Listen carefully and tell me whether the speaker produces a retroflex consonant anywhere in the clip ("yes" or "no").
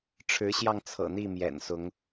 yes